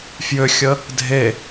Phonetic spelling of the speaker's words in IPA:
f j ʏ xʲ ə | dʱ e

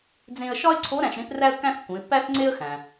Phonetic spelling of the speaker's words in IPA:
d͡z ẽ˧ ə̯ ʃ ɒ˥ ɪ̯ ǀʰ o˧˥ ɾ æ̃˧ ʃ ɾ ĩ˧˥ θ r æ˥ ə̯ kː æ̃˥ θ kː ũ˩˧ ɪ̯ pː æ˥ θ ŋ͡ǀ e˥ ə̯ x æ̃˩

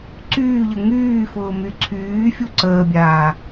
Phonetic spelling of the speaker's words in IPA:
ǀ yː ʎ ə ŋ yː f ʊː m y ǀʰ yː fʲ u ǀ əː bʲ aː

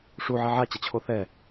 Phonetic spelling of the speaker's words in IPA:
ʂ u ʕ ɛ ʕ a t͡ɕ ʌ t͡ɕʰ o θ ɛ

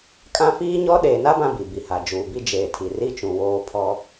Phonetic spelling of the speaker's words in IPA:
kʼ ã˦ f iː˦ ɲ ɔ˦ ɗ eː˨ n a˦ b ã˦ b i˨ b i˨ h a˨ d͡ʒ uː˨ b i˦ d͡ʒ eː˨ tʰ i˨ r i˦ t͡ʃ ũ˨ w oː˦ pʰ ɔ˦

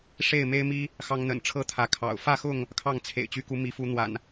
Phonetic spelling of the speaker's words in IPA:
ʂ e˥˨ ɪ̯ m e˦ ɪ̯ m i˦ | x ɑ˦ ŋ n̪ ə̰˨˩ n ʈ͡ʂʰ ɤ˥˨ t̪ʰ ä˨˦ kʰ ɑ̰˨˩ ʊ̯ f ä˥˨ x ʊ˥˨ ŋ | kʰ ɑ˥˨ ŋ t͡sʰ ḛ˨˩ ɪ̯ t͡ɕ y˨˦ k u˨˦ m i˨˦ f u˨˦ n̪ w a̰˨˩ n

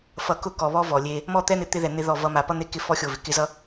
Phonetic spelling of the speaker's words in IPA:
f ʌ˨ k ʊ˦˨ k ɔ˨ β ɔ˦ v ɔ˨ lʲ e˦ | m ɔ˦˨ t̪ ɛ˦ n̪ ɪ˨ t̪ ɪ˦ ð ɛ˨ n̪ ɪ˦ ð ɔ˦˨ v ʌ˦ m a˨ p ʌ˦ n̪ e˦ k ɪ˦ f ɔ˦ xʲ o˦˨ v ɪ˨ k ɪ˦ z ʌ˦

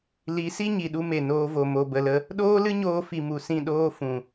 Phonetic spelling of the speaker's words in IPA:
l i˨˦ s i˦ ɲ i˨ ɗ u˧ m e˨ n oː˧ v o˨ m o˨ b ə˨ l ə˧ | ɗ oː˦ l ɨ˦ ɲ oː˧ f i˨ m u˨ s ĩ˦˨ ɗ oː˦ f ũ˨

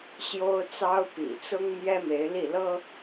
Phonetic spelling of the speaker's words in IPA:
ɕ j o˥ ʊ̯ t͡s ɑ˥ ʊ̯ p ḭ˨˩ t͡s ʊ˥ ŋ m j ɛ˥ m e˧˥ ɪ̯ l i˥˩ l ɤ˥

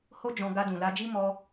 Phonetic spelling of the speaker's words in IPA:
h o˦ d͡ʒ ɔ̃˧ ɡ a˧ d ũ˨ l a˧ d͡ʒ i˦ m ɔ˧

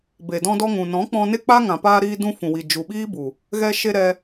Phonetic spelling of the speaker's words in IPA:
b e˨ d ɔ̃˧ d ɔ˧ ŋ ũ˨ n ɔ̃˨˦ k͡p ɔ̃˧ n e˦ k͡p a˦ ŋ ã˨ p aː˧ ɾ iː˧ d ũ˧ f ũ˨ w i˨ d͡ʒ u˨ ɓ iː˦ b u˨ | ɣ ɛ˧ ʃ e˧ ɾ ɛ˧

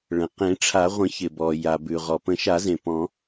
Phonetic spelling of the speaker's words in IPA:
ɭ ə̃˩ q ẽ˨˩˦ ʈ͡ʂʰ a˨˩˦ ʁʷ ə̃˨˩˦ ç ɪ˩ b ɔ˩ j a˩ b ʉ˩ ʁ ɔ˩ p ə̃˨˩˦ ʃ a˨˩˦ z ẽ˩ p ɔ̃˨˩˦

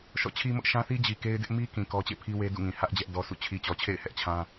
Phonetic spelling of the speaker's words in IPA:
ʃ ɔ̰˦˨ t͡ɕʰ i˦ m ʊ˦ ʔ ʃ ã˦ θ i˦ d͡ʑ i˨ k e˦ ɪ̯ d ɪ˦ ʔ m i˦ k ĩ˨ k ɔ˦ t͡ɕ ḛ˦˨ pʰ i˦ w e˦ d ṵ˦˨ ŋ ĩ˨ h ä˦ ʔ d͡ʑ ɛ˦ ʔ d ɔ˦ s ṵ˦˨ t͡ɕʰ i˨ t͡ɕ ɔ˨ t͡ɕʰ ḛ˦˨ ɪ̯ h ɛ˦ ʔ t͡ɕʰ ã˦

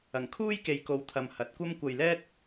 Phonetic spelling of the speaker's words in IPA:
ɐ˨˩ ŋ kʰ uː˥ j k e˨ j k o˨˧ w t̪ʰ ɐ˨ m h ɐ˨˥ t̚ kʷ ɐ˥ m kʷ ɐ˧ j l ɛː˥ t̚

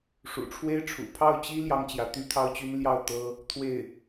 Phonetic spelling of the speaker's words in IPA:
ʂ ṵ˨˩ ʈ͡ʂʰ w e˥ ɪ̯ ʈ͡ʂʰ ṵ˨˩ pʰ ɑ˥˩ ʊ̯ t͡ɕ i˥ l j ɑ˥ ŋ t͡ɕ j ä˧˥ t̪ y˥ t̪ʰ ɑ˥ ʊ̯ t͡ɕ y˥ n l j ɑ˥˩ ʊ̯ t̪ ɤ˥ | t̪ʰ w e˥˩ ɪ̯

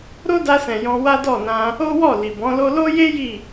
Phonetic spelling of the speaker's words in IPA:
ɾ o˦ d a˧ s ɛ̃˨ j ɔ̃˧ w a˦ d ɔ˦˨ n ã˧ | o˦ w ɔ˦˨ l i˨ b ɔ̃˨˦ l o˦ l o˦ j e˦ j i˦˨

